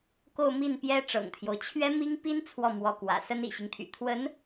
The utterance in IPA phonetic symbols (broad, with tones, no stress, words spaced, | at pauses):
ko˥˧ʊ̯mi˥˩n pjɛ˥ ʈ͡ʂɤ̰˨˩ŋt̪ʰjo˦ʊ̯ t͡ɕʰɥɛ˥mi˥ŋpi˥n t͡sʰwɔ˥˩mwɔ˧˥kwä̰˨˩ sə˥nḭ˨˩ɕi˦ŋt̪ʰy̰˨˩ t̪ʰwə˧˥n